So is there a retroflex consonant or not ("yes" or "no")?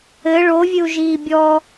yes